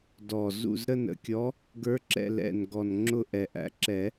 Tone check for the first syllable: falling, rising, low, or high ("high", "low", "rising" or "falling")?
low